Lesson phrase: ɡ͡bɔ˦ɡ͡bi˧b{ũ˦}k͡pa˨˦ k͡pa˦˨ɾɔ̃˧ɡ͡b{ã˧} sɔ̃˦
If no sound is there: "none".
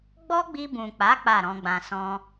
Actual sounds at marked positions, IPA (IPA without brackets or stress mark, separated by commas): ũ˨, ã˧